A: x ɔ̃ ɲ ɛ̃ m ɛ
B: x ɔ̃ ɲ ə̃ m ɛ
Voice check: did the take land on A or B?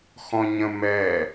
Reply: B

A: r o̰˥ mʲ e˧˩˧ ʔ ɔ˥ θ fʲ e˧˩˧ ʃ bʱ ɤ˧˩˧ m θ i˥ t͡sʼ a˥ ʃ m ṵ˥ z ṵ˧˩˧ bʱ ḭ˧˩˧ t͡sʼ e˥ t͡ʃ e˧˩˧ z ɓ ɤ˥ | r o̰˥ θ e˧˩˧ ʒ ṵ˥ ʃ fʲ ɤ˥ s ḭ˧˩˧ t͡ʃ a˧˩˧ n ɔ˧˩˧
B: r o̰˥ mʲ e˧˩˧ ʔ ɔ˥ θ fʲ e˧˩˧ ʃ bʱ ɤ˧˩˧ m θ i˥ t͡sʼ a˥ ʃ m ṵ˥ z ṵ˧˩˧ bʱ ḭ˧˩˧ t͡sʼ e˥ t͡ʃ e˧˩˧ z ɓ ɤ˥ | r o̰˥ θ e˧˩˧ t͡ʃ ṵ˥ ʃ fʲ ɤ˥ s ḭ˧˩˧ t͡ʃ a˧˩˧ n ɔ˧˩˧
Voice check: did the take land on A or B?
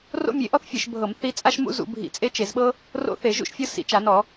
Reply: A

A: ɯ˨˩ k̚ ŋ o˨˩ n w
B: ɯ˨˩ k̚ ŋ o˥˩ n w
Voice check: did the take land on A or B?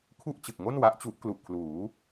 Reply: B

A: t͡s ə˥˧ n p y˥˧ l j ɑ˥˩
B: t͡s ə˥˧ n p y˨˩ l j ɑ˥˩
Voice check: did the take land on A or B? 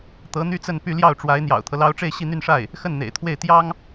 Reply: A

